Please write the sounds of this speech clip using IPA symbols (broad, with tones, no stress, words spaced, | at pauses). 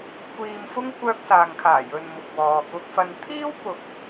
kʷiː˧mfʊ˥ŋ kʷœː˧k̚saː˨ŋkʰaː˨˩ jɵ˨n mʊ˨k̚wɔː˨kʊ˧k̚fɐ˧n t̪ʰiː˥wpʊ˨k̚